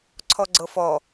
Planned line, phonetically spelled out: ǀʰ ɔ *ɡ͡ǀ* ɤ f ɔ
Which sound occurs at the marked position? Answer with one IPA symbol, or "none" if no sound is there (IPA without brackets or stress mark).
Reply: ɡ͡ǀ